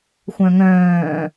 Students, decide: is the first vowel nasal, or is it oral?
nasal